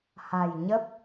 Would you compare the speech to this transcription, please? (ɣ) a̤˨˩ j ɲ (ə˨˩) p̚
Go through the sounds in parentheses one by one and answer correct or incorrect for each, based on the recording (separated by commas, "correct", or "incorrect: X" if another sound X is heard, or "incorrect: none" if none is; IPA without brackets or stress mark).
incorrect: h, incorrect: ə˦˥